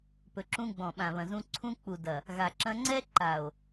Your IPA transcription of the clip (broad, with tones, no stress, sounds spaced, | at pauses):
p ɵ˨ ǁ ũ˧ ɡ͡b ɔ̃˨ ɓ ã˨ β ɐ̃˨ z ũ˧ ǀʰ ũ˧ k͡p u˨ d ɐ˨ | ɣ a˨ ǁ ɐ̃˧ ŋ͡ǀ ɛ˦ ǃ a˨ o̯